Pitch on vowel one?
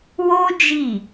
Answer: high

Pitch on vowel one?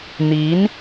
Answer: rising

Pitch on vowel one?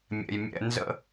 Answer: low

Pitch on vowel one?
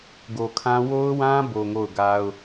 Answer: low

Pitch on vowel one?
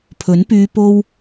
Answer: rising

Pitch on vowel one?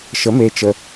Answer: rising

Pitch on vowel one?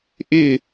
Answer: falling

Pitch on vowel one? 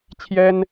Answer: high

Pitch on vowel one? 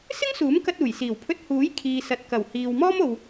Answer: high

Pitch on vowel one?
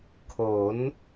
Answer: rising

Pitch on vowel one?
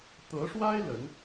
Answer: rising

